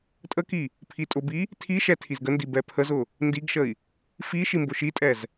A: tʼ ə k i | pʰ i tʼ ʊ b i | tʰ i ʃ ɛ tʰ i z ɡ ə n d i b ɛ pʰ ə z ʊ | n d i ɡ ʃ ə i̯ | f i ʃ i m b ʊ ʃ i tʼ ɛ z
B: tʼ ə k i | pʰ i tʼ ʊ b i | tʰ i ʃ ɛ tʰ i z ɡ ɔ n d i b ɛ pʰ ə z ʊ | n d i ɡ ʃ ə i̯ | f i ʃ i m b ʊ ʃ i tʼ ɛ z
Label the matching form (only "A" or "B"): A